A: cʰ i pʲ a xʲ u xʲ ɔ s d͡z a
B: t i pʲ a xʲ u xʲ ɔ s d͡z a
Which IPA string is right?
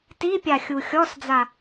B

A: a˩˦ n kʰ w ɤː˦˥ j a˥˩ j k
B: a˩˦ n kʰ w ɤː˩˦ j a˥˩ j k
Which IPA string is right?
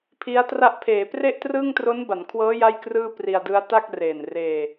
A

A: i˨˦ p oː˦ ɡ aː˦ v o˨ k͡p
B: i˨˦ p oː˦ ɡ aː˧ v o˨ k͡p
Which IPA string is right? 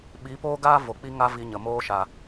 A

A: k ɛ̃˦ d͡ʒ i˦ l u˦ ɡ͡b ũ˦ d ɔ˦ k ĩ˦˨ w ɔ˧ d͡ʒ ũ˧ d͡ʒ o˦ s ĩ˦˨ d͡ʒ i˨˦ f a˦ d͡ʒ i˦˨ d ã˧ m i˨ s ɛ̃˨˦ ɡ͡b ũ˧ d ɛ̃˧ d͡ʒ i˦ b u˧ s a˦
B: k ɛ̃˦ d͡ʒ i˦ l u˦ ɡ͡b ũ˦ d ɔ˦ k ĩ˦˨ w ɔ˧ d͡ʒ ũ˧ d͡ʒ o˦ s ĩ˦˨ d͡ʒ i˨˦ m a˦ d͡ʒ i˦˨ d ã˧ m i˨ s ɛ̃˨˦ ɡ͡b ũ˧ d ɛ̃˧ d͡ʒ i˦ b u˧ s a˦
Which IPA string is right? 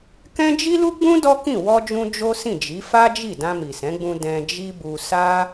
A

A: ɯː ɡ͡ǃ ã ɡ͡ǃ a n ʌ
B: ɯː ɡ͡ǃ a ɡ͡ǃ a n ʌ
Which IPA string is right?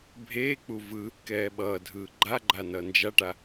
B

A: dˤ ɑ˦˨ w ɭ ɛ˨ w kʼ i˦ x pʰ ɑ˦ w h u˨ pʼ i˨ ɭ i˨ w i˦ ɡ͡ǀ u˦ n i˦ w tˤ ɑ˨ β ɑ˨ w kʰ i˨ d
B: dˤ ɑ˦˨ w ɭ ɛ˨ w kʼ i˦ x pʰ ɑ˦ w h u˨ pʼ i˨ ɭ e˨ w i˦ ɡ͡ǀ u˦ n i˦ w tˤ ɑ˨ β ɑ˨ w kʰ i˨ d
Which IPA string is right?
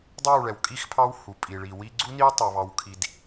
A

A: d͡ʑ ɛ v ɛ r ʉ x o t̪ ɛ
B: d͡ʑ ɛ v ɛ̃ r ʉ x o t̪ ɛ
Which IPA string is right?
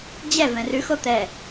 B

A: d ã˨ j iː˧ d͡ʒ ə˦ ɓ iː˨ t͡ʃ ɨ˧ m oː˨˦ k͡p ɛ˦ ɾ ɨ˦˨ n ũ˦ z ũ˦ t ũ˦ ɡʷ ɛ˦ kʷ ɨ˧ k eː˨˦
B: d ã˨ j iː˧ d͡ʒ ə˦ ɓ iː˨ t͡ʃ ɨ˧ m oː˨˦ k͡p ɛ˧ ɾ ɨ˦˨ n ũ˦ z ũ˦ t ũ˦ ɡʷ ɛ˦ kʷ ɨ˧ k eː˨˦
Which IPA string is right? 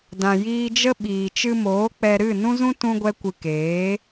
B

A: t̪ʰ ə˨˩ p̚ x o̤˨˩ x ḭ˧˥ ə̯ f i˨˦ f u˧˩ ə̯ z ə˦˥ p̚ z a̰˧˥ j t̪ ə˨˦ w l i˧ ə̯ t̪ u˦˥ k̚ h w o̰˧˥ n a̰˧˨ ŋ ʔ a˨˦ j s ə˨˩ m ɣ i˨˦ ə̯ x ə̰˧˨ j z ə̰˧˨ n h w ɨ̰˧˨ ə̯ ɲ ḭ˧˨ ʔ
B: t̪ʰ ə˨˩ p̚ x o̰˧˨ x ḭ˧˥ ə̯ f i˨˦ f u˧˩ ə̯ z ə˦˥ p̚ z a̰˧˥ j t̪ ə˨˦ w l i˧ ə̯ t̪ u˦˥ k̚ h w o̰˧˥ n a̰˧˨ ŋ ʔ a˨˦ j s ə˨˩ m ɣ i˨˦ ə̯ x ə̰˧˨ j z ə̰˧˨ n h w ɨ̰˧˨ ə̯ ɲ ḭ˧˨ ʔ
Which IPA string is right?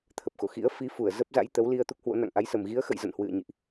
B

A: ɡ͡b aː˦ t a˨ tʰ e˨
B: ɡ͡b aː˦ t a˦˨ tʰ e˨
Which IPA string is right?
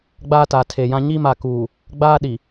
A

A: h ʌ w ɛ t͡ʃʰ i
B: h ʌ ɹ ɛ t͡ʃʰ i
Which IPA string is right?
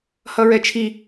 B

